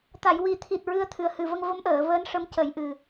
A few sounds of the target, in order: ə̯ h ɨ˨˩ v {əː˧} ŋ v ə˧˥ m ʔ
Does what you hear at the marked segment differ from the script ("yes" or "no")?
yes